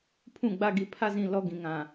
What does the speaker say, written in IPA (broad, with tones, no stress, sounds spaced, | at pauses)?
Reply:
pʰ ũ˦˨ ɡ͡b a˦ ɡ i˨ pʰ a˦ z ĩ˨ l ɔ˦ ɡ ĩ˨ ŋ ã˨